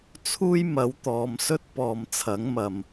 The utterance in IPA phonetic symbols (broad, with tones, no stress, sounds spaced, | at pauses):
t͡sʰ uː˥ j m ɐ˨˥ w t̪ ɔː˨˧ m s ɵ˥ t̚ p ɔː˨ m t͡sʰ ɐ˨˥ ŋ m ɐ˨ m